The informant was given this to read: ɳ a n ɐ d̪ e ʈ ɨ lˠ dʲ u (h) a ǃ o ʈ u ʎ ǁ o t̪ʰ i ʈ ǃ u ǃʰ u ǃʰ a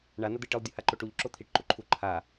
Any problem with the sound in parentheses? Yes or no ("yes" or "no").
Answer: no